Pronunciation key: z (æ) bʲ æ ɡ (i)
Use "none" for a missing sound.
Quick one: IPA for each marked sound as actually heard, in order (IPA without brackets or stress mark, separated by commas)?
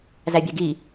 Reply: æ, i